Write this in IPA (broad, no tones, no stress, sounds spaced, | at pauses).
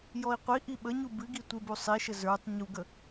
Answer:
j ɔ i̯ qʷ i ʔ i ɓ ə ɲ u b ɨ ɡ i tʷ ɪ b u sˤ i ʃ ə z ə˞ tˤ ɲ u ɡ ə